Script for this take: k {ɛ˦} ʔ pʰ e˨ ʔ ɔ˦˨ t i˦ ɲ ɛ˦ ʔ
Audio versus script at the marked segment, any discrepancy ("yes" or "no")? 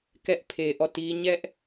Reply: no